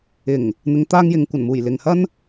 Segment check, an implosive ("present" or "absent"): absent